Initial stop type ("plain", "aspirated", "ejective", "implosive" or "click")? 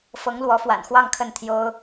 aspirated